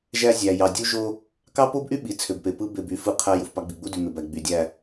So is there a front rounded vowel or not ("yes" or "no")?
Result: yes